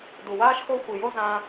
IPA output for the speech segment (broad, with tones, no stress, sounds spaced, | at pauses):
d u˧ w aː˥ ʃ x o˥ xʷ i˧ j o˥ z ã˥